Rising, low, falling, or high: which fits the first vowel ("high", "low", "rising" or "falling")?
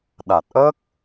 low